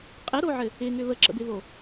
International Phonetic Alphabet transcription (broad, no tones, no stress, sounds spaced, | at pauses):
qʼ ɪ ɾ o ʕ ɘ | ɪ ŋ ʏ β ə ǁ ə̰ b ɪ β o